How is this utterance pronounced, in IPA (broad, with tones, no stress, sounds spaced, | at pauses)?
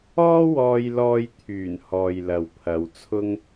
ɔː˥ w ɔː˧ j l ɔː˧ j t̪ʰ yː˨˩ n h ɔː˨ j l ɐ˨ w pʰ ɐ˨˧ w t͡sʰ ʊ˥ ŋ